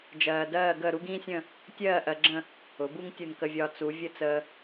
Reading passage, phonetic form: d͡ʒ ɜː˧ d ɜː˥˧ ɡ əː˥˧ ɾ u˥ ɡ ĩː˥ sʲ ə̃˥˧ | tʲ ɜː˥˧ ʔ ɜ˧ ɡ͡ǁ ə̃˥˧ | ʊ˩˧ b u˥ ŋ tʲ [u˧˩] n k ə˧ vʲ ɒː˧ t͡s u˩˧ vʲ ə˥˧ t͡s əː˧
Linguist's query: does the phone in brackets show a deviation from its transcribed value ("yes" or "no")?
no